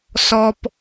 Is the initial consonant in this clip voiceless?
yes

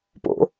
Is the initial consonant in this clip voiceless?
yes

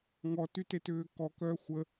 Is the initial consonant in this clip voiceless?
no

